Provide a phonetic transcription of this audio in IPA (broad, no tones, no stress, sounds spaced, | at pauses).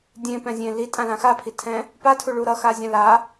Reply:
dʲ ẽ p ɛ̃ zʲ ẽ l i tʼ ã l ã x a pʰ i tʰ ɛ̃ | p a tʰ u ɭ u ɾ ʌ x a zʲ ã l a